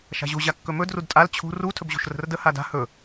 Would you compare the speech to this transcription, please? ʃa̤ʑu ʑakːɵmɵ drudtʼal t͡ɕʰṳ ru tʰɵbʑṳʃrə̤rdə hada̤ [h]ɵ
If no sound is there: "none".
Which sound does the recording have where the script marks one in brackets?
h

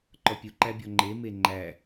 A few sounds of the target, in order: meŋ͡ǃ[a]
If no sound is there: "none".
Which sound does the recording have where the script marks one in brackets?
æ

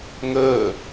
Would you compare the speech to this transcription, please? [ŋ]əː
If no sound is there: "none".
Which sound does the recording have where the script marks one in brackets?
ŋ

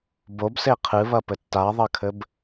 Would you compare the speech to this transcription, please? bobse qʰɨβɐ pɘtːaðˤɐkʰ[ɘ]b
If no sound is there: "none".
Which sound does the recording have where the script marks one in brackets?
ɘ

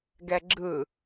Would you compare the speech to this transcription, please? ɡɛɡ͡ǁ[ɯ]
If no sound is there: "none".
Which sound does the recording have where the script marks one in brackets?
ɯ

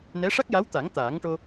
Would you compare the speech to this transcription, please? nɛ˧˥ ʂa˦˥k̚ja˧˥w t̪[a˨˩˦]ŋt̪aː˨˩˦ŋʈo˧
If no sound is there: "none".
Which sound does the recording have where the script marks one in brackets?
a˨˩˦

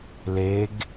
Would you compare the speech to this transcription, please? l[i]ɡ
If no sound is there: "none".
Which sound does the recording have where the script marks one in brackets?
e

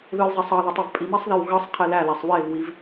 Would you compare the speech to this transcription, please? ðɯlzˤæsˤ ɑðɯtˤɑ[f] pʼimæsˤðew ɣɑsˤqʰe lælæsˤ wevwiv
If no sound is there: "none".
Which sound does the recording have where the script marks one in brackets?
v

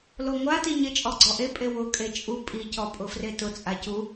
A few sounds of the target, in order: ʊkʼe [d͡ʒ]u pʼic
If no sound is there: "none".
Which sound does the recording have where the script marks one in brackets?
t͡ʃʼ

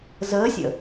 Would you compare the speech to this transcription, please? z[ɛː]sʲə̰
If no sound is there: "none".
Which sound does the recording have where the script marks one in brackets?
əː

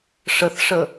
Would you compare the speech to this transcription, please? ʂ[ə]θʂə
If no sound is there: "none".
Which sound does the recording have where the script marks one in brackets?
ə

